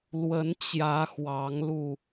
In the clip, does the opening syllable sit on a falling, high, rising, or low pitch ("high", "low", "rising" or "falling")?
rising